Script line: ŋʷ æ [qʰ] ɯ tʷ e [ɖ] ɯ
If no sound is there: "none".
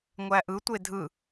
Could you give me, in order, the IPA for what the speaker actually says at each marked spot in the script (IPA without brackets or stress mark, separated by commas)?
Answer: ʔ, dʱ